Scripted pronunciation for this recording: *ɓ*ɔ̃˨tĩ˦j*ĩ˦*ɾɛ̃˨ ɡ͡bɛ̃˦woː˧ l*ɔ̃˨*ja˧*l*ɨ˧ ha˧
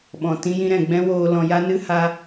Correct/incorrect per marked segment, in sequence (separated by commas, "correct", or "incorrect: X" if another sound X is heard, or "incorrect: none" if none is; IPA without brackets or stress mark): correct, correct, correct, incorrect: n